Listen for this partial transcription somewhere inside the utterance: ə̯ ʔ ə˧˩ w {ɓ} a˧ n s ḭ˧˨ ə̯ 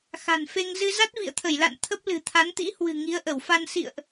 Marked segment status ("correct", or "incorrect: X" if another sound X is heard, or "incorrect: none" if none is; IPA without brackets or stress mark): incorrect: f